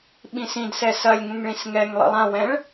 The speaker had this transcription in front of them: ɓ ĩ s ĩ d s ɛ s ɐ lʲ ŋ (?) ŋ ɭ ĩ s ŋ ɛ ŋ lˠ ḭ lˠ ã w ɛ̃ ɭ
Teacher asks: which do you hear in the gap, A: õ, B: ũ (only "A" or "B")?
B